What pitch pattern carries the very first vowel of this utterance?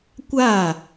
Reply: falling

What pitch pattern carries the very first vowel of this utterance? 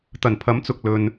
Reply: low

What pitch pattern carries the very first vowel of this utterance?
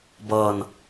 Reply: falling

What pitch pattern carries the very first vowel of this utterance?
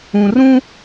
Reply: low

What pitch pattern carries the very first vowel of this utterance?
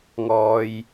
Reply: low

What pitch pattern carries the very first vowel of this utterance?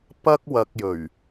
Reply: high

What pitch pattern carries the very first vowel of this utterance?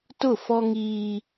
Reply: falling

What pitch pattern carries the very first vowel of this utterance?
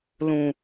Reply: low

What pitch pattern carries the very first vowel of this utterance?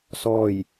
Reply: falling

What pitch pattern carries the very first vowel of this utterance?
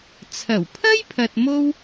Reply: low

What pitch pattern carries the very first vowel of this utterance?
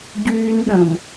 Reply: high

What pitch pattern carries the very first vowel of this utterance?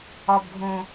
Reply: low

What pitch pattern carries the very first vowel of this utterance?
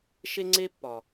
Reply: high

